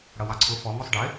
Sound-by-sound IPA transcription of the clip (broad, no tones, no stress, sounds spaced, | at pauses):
ɽ ʌ w ɑ ǀʰ ʊ f ɔ ŋ u sˤ ɖ ɪ